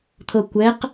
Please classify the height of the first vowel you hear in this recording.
mid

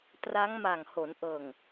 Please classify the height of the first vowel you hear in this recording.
low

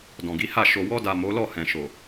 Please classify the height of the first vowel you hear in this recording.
mid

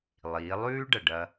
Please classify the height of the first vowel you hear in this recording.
high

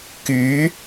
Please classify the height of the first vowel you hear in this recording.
high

